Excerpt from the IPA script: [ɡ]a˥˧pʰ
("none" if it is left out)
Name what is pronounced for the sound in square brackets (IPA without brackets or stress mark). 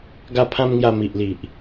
ɡ